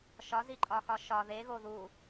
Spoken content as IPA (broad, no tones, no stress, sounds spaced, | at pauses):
ʃ ɒ z i ǃʼ ɒ x ɒ ʃ ɒ ð e ɣ o ð u